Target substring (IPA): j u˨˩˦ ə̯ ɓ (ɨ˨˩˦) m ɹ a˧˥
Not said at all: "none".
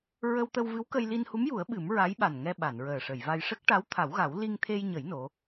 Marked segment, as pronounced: ɨ˨˩˦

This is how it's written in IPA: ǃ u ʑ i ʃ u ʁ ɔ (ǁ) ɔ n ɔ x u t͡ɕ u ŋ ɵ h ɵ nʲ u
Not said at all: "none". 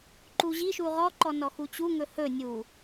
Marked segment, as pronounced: ǃ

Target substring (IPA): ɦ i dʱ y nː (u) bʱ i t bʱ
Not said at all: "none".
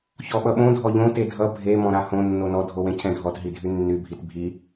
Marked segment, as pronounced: y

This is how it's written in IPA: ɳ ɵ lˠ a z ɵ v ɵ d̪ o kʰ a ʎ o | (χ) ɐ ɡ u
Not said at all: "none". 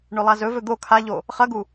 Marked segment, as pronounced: χ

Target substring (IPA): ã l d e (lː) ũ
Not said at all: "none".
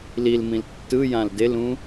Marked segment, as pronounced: l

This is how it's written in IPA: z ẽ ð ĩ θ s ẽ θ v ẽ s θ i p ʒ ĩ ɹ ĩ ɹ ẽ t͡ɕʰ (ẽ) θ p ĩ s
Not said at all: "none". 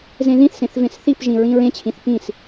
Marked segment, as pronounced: ĩ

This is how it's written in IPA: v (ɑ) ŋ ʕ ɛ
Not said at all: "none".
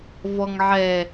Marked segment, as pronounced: ɔ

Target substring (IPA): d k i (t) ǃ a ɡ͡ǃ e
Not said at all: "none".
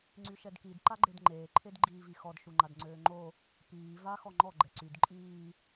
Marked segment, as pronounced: d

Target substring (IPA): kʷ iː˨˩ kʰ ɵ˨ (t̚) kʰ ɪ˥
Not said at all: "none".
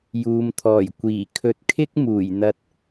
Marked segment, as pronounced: t̚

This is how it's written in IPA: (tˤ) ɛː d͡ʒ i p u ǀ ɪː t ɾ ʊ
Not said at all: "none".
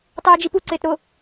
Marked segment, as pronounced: tˤ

